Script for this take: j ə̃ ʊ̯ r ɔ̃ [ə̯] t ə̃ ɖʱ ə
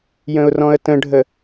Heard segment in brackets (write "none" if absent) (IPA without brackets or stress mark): ə̯